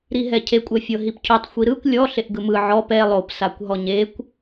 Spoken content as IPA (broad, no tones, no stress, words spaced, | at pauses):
ɾiɦɛcʰe kʷʼɛfʲɤɦipcʰutˤ xʷiɾɯkʷ lʲɔ ɬeʔɡɯmɯ ʕɔp ɛ lˠop sakʷɦɔɲekʷ